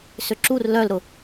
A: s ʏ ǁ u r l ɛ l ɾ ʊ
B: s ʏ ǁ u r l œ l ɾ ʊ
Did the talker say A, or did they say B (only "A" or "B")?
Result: B